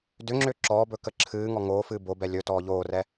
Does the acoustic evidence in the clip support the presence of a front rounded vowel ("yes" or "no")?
yes